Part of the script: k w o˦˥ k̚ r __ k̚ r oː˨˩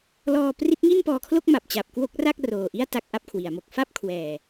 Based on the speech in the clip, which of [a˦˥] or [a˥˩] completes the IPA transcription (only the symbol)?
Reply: a˥˩